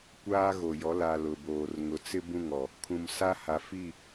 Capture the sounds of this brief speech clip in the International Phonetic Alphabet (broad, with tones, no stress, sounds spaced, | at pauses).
kʷ aː˦ ɣ o˨ j ɔ˨˦ l a˨ l ʊ˨ b oː˨ r ŋ ʊ˨ t͡s ɪ˦ b ũ˦˨ ŋ ɔ˨ | kʰ ũ˨ m s a˦ h a˨ f i˦˨